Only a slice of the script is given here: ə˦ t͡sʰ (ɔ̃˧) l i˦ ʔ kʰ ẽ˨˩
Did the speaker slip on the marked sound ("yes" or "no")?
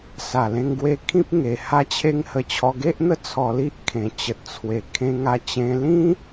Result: yes